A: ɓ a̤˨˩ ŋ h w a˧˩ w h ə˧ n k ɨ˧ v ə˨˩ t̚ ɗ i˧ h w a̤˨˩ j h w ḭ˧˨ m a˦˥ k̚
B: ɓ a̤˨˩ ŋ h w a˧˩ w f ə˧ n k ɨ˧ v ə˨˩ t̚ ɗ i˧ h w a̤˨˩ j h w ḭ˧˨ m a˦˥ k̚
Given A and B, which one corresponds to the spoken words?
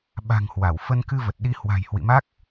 B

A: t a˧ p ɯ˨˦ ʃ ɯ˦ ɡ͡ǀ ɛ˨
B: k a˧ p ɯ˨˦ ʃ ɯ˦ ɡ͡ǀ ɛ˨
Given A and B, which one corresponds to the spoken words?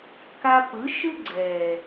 B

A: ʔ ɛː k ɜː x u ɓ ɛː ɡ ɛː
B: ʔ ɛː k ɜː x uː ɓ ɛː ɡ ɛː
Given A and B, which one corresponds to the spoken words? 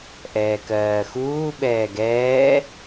B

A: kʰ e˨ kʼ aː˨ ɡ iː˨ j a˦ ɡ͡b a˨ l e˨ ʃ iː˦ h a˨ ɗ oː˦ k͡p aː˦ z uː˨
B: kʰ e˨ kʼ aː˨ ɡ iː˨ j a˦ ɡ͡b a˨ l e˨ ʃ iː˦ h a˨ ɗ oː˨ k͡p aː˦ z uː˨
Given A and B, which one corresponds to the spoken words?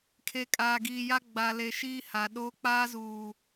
A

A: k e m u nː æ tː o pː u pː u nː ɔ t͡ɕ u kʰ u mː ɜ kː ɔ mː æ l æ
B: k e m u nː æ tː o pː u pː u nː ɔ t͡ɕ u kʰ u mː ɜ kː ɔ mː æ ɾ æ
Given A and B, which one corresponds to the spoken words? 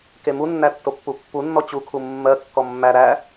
B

